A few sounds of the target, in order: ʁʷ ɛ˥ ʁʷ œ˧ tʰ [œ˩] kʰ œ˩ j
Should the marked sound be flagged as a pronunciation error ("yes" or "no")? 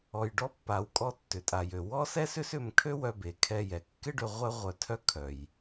yes